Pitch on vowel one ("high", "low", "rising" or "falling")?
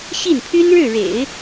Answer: falling